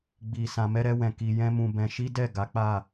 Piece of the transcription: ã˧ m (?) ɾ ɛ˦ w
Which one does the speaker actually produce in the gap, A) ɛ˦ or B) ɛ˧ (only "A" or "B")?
A